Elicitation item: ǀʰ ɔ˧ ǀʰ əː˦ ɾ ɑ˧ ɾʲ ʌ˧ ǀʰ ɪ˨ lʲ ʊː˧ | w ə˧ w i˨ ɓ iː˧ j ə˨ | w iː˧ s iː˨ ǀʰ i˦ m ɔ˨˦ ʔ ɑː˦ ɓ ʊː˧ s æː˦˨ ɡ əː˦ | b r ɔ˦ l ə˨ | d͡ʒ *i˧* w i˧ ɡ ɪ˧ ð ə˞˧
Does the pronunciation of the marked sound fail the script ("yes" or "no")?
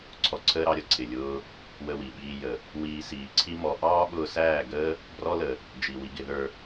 yes